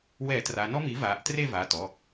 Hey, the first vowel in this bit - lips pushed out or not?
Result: no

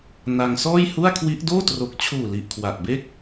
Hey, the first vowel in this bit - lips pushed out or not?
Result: no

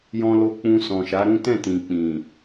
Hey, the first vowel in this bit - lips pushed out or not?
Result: yes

